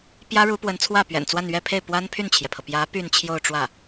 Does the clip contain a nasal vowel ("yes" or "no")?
no